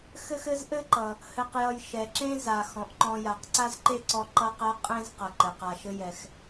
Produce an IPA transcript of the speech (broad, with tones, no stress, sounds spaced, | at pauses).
x ɘ˥ x ɘ˥ z ʔ ɘ˥ ǃ ʌ˩ | h ɘ˨ q j ʌ˨ j ʃ ɛ˩ ǁ ẽ˥ z a˩ x ɔ̃˩ ʔ ǃ ɔ̃˨ j a˩ q ǀ a˥ z ǃ e˥ ǀ ɔ˦ ǃ ʌ˦ q ɛ˦ qʼ ẽ˥ z q ʌ˩ ǃ ɘ˩ q a˨ ʃ ɘ˥ j ɛ˨ x